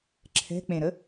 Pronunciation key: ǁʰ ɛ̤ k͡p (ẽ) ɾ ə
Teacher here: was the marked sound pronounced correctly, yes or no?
yes